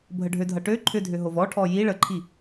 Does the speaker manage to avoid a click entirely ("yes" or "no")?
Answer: no